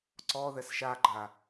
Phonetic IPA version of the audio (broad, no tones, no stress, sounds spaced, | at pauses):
ǀ ɔ ð ɛ s ʃ a ɡ͡ǃ a